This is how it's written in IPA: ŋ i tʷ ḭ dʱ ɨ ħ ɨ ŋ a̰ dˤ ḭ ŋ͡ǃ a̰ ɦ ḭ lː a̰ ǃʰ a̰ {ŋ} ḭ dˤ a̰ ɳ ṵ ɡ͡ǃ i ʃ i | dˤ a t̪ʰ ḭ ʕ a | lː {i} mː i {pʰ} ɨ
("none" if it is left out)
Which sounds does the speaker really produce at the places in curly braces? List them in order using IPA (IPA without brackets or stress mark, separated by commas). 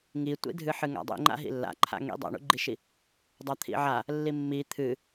ŋ, i, t̪ʰ